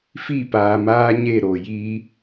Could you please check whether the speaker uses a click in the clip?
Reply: no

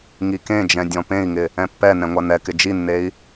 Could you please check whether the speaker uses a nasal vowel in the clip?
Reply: yes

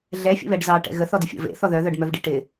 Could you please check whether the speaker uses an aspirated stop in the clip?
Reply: no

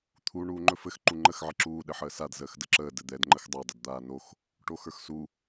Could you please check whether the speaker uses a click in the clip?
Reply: yes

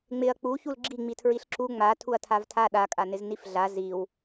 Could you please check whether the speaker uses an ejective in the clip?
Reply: yes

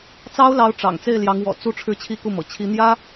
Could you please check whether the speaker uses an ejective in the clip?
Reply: no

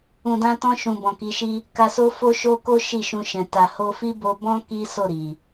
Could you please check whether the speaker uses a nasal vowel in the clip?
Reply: yes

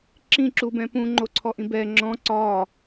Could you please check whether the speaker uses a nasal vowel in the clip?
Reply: yes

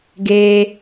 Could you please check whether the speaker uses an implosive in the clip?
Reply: no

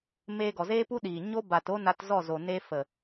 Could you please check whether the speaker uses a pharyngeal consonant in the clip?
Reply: no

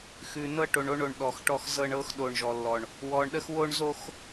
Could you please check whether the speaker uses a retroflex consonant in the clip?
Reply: yes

